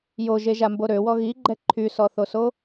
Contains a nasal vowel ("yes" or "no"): no